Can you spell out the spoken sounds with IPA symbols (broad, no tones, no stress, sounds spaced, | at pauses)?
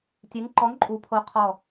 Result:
tʲ e ŋ ǃ ɔ ŋ ǃʼ u pʰ o qʰ ɔ